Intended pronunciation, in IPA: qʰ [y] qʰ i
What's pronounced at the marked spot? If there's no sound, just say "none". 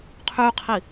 y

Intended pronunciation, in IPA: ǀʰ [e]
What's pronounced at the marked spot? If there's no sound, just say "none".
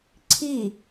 i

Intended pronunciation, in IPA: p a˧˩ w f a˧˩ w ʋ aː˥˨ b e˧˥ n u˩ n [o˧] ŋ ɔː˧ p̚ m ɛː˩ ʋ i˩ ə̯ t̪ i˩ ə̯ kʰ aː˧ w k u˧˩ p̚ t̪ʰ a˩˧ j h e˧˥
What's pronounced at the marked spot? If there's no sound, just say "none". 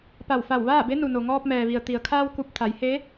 o˩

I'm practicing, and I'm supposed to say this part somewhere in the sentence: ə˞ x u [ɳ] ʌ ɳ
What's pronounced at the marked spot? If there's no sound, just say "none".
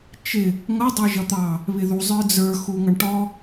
ŋ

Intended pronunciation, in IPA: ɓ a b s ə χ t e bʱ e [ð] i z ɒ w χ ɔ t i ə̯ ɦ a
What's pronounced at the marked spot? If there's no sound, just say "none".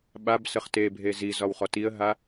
z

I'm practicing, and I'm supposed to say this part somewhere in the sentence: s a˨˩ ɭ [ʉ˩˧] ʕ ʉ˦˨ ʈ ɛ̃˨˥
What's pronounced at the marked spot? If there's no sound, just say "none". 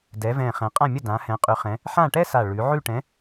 ʉ˩˧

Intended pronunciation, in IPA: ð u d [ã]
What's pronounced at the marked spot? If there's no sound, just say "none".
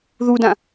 ã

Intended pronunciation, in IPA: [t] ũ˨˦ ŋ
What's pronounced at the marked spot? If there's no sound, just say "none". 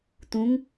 t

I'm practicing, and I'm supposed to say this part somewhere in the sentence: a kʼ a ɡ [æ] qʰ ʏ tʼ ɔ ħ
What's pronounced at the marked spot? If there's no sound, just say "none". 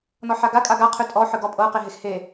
a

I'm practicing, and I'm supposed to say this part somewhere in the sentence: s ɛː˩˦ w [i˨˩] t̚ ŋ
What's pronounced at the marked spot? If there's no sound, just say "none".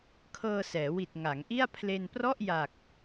i˨˩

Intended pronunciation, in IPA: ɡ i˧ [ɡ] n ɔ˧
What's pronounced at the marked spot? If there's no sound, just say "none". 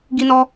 none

